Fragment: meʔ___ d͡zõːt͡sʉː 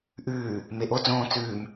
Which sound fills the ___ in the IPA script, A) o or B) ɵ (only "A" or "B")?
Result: A